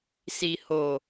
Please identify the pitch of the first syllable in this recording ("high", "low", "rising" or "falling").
low